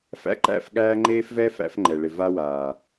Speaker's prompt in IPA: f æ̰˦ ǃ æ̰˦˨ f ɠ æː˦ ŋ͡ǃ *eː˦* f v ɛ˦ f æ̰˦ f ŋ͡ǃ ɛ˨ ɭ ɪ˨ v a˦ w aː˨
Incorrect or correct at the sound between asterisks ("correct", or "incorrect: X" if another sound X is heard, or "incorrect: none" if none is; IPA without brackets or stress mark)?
correct